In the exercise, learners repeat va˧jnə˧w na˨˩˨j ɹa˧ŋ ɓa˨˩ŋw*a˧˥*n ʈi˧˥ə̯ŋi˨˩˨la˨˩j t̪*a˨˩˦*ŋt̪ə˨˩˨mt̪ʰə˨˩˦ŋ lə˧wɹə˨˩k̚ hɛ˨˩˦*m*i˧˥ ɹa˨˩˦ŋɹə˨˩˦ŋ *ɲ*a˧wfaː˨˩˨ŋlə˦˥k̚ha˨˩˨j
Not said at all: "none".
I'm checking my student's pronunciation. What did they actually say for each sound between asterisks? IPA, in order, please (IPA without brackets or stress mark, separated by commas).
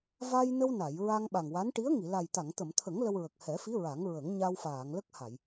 a˧˥, a˨˩˨, f, ɲ